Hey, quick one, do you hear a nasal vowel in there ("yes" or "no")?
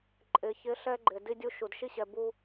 no